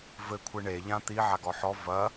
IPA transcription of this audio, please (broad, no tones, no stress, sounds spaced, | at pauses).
v ɘ kʷʰ ɨ ɳ e ʎ ã t̪ i ʕ a ɡ ɔ ħ ɔ v ɐ